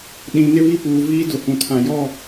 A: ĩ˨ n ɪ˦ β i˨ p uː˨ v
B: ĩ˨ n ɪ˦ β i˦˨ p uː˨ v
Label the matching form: B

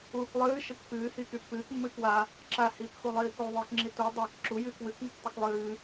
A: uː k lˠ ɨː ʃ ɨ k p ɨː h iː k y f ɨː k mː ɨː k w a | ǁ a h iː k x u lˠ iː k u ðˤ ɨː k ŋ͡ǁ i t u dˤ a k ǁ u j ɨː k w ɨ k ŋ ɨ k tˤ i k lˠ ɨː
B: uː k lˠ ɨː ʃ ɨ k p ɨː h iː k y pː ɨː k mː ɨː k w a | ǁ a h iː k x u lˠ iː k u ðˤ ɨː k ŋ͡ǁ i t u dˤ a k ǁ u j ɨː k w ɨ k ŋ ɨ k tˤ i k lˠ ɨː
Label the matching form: B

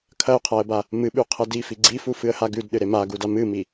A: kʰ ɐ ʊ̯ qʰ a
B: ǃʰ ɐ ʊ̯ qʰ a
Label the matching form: A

